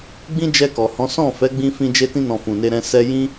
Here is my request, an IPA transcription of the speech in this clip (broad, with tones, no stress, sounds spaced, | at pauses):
ɡ͡b ĩ˦ d͡ʒ ɛ˧ k ɔ˨ h ɔ̃˨˦ s ɔ̃˦˨ f ɛ˨˦ ɡ͡b ĩ˧ f ĩ˧ d͡ʒ e˧ t ĩ˧ n ɔ̃˨ f ũ˨ n e˧ ɾ ɛ̃˧ s ɛ˧ j ĩ˦